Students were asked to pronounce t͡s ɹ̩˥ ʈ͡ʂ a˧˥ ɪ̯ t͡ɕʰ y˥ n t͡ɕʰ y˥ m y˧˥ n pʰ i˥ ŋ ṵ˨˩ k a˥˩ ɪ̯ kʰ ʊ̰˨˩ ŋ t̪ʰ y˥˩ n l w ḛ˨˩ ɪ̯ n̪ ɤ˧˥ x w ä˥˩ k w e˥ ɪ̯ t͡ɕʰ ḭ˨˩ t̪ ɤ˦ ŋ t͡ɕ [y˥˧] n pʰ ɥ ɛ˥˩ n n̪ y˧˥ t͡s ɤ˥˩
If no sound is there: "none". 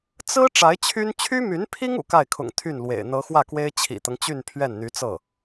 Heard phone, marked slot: y˥˧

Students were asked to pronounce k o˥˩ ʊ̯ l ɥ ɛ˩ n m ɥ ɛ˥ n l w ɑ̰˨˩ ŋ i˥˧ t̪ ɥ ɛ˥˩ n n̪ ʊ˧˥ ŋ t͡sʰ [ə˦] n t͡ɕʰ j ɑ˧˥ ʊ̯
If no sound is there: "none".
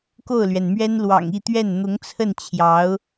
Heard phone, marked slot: ə˥˩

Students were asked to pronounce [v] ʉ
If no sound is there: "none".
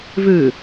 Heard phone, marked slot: v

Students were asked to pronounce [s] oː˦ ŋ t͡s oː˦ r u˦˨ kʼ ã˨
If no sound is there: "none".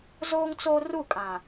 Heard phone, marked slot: z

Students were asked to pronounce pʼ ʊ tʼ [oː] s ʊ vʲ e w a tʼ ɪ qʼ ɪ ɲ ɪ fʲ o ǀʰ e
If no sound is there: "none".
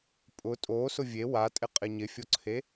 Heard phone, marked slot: oː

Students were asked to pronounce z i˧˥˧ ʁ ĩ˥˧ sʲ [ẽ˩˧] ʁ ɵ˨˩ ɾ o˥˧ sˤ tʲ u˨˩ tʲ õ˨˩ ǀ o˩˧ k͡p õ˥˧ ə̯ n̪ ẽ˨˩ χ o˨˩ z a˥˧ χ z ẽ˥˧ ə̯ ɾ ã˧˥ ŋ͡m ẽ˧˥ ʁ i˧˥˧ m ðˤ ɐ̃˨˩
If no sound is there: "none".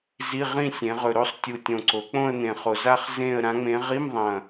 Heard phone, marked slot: ẽ˩˧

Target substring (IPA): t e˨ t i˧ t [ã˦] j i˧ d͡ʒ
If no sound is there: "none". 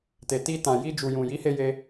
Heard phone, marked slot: ã˨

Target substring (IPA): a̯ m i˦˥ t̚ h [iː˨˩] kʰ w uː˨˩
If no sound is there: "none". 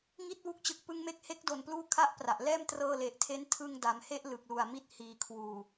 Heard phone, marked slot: iː˨˩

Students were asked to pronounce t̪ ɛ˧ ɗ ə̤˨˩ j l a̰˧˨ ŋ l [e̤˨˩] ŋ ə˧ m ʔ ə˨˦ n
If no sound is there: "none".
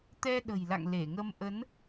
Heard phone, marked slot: e˧˩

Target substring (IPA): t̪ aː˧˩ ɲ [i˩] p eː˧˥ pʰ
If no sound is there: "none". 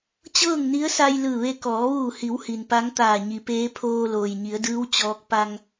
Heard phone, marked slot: i˩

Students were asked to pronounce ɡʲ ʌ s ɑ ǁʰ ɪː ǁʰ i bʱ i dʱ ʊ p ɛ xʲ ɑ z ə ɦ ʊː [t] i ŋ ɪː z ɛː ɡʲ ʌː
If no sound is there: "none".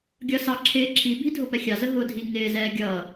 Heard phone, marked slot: dʱ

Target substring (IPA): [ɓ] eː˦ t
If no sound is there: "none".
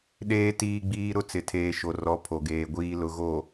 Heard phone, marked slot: ɗ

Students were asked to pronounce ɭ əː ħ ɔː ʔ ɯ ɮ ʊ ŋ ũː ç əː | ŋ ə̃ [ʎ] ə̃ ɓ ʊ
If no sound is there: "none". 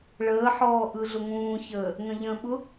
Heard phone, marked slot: ʎ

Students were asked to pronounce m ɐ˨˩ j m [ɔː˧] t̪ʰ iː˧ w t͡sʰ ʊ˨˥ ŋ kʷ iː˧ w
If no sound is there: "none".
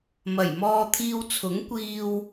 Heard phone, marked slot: ɔː˧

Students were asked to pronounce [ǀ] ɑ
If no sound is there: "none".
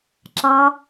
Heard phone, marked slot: ǁ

